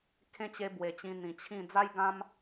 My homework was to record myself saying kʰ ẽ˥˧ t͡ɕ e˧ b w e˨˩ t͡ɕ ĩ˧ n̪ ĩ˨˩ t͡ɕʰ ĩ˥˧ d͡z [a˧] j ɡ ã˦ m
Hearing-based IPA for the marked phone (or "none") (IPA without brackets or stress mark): a˦